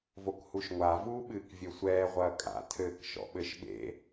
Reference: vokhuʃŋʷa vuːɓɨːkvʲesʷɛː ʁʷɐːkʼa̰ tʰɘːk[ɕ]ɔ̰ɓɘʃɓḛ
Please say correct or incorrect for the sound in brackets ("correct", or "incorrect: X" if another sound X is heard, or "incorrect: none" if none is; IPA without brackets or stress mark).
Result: incorrect: ʃ